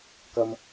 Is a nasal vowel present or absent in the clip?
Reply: absent